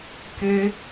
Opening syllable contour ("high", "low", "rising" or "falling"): high